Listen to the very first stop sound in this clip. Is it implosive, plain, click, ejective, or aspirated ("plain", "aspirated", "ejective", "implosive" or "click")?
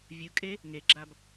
ejective